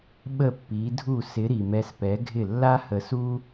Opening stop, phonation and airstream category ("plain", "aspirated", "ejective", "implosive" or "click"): implosive